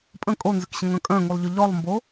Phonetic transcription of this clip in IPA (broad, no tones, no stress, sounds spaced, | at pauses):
pʼ ə̃ kʼ o n z ʏ k ɕ ə̃ ŋ œ̃ kʼ œ̃ ŋ u lˠ ʎ ʏ ʎ ɔ lˠ m b o